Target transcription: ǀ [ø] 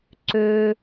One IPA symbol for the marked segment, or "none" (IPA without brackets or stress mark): ø